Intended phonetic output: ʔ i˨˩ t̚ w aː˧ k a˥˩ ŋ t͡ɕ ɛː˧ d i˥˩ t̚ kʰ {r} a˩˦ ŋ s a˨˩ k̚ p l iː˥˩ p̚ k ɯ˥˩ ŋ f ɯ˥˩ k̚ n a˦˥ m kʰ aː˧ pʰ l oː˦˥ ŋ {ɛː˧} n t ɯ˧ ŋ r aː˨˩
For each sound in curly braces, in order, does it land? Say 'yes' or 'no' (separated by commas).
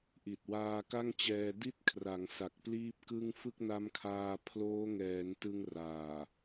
yes, no